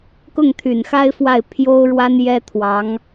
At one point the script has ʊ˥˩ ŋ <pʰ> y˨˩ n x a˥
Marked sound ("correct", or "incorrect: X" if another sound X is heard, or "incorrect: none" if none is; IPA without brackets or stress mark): incorrect: t̪ʰ